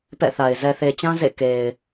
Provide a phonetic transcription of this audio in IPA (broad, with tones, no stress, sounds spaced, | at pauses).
p ɛ̰˦˨ θ a˨ ɪ̯ z ɛ˨ θ e˨ t͡ɕ ã˦ z ḛ˦˨ k e˨ ɪ̯